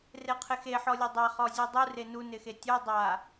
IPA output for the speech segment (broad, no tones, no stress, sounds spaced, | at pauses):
r e qʰ ɪ x e ħ ɔ lʲ ɛ dˤ a χ ɔ zʲ u dˤ u r e n u n ɪ x e tʲ o dˤ a